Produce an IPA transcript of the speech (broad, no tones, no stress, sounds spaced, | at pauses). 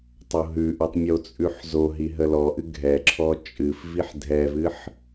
tˤ o ɦ ʉ ʔ ɨ tˤ mʲ o t͡sʼ ʉ ħ z o ɦ i ɦ ə l ɔ ʔ ɨ ɡʱ ɛ ǁʰ ɔ t͡ʃʼ ɨ f v i ħ dʱ ɛ v ɨ ħ